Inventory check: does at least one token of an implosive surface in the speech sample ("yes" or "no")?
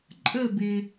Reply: no